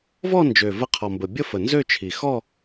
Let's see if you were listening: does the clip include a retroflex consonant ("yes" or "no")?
no